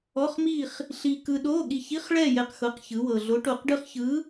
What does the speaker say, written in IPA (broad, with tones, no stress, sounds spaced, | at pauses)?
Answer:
ɔ˧˥˧ χ m i˥˧ χ | ɬ i˧ k ɯ˧ ɗ o˧˥˧ ɠ i˧ ç i˧˥˧ χ ɭ ɛ˥˧ j ɛ˧ q x ɤ˧˥˧ q ç ɯ˧˥ w ɤ˧ ɮ o˧˥ ʈ o˧ q ɖ ɯ˥ χ ç ɯ˧˥